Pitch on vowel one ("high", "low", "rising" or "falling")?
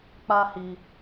high